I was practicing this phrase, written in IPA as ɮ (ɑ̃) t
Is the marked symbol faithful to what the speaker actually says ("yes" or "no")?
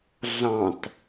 yes